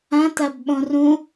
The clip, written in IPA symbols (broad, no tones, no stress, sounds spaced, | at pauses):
ɐ̃ t ɐ b ɓ õ r ũ